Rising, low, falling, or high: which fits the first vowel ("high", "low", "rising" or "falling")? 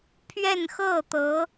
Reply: falling